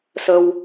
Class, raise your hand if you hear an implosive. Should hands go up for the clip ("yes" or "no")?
no